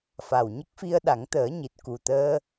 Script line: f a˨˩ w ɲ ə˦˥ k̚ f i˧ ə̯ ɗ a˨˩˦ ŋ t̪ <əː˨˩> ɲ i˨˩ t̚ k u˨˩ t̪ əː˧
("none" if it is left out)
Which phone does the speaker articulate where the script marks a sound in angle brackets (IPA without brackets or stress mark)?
əː˨˩˦